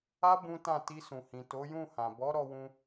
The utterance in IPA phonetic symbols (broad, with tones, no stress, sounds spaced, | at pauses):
a˦ b ũ˦ t ã˦˨ t i˧ s ũ˨ h ĩ˨ t o˨˦ j ũ˦˨ h ã˨ b ɔ˨˦ ɾ ɔ˧ w ũ˧